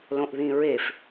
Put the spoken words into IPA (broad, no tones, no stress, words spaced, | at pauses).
lõʔðĩɹef